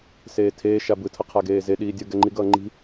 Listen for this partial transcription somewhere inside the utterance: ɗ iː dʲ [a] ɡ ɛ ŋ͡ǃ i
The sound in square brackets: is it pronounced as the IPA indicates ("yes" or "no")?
no